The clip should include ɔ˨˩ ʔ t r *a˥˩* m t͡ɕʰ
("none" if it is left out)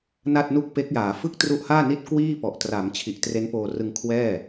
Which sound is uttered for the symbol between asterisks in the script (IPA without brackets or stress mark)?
a˩˦